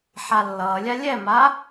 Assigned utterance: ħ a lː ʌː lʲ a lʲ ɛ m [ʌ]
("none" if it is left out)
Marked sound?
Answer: a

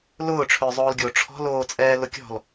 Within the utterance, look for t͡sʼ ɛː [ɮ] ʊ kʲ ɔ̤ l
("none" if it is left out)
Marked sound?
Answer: l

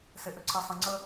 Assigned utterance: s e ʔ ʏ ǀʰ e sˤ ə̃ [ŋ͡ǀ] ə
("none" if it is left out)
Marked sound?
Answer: ŋ͡ǀ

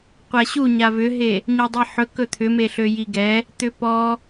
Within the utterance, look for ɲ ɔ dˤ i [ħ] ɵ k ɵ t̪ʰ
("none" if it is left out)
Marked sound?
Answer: ħ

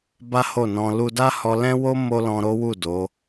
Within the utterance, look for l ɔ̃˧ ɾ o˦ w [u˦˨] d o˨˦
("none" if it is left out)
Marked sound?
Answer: u˦˨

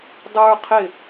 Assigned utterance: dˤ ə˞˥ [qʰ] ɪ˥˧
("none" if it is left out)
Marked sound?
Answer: qʰ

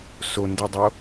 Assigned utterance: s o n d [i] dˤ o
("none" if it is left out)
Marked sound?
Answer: i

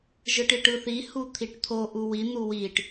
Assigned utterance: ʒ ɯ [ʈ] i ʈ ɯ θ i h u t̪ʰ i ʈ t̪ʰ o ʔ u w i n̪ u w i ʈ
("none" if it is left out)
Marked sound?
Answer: ʈ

